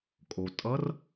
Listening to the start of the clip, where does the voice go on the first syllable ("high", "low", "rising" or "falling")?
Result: low